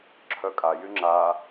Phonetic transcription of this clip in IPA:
ǁʰ œ kʼ a j y ŋ͡ǁ a

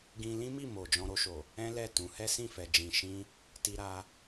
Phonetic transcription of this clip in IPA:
ɡ ĩ˧ l ĩ˦ m i˦˨ m o˨ d͡ʒ ɔ̃˧ ɾ o˧ ʃ o˨ | ɛ̃˦ l ɛ˦˨ t ũ˨˦ h ɛ˦ s ĩ˦˨ f ɛ˨ d͡ʒ ĩ˨ ʃ ĩ˧ | t i˧ ɾ a˧

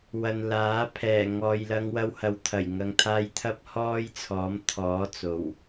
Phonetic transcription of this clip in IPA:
w ɐ˨ n l aː˨˥ pʰ ɛː˨˩ ŋ ɔː˨ j l ɐ˧ ŋ w ɐ˧ w h ɐ˨ w t̪ʰ ɐ˨˩ j ŋ ɐ˨ ŋ t̪ʰ aː˧ j t̪ʰ ɐ˥ p̚ h ɔː˥ j t͡sʰ ɔː˨˥ m t̪ʰ ɔː˨˥ t͡s o˨˩ w

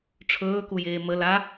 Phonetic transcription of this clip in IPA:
ʈ͡ʂʰ ɵː k u j eː m ə l a

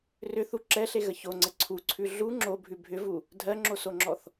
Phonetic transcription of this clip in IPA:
r ʏ θ u ǁ ɛ ɬ e ɣ ə ç o ŋ͡ǀ ə ǀʰ u ǀʰ ʉ ɮ u ŋ͡ǁ o bʱ ʉ bʱ ʏ v u | dʱ ɜ ŋ͡ǁ o s o ŋ͡ǁ ɔ θ

